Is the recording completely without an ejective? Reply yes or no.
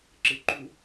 yes